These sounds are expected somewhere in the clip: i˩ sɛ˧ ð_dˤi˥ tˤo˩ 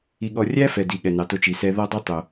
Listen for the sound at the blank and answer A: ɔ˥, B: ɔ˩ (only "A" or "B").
A